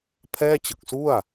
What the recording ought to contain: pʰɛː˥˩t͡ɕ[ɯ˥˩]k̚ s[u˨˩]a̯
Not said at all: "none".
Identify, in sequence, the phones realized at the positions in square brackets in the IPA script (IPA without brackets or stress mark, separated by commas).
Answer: ɯ˨˩, u˥˩